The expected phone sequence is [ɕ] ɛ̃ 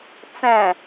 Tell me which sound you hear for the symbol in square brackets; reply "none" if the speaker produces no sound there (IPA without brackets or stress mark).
t͡s